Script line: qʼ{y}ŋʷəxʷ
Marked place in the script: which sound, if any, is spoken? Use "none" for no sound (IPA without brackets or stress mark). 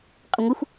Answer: ʏ